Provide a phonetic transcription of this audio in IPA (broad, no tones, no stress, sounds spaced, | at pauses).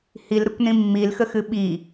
h i l ɾ ə kʷ n ĩ mː i l x ə x ɨ ɓ i